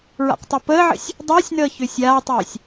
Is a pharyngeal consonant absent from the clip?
no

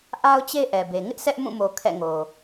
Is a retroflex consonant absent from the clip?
yes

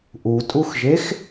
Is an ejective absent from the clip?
no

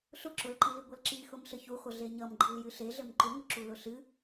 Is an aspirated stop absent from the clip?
yes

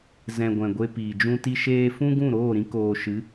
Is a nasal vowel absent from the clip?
no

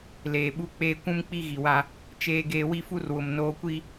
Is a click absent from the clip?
yes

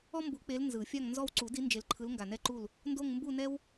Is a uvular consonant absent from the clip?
yes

